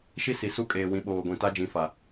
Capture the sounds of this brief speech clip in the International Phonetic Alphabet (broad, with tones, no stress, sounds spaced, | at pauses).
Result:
ʃ i˦ s i˨ s u˦ kʼ eː˨ w ĩ˨ ɓ oː˨ ɡʷ ĩ˨ t a˦ d͡ʒ ĩ˨ f a˨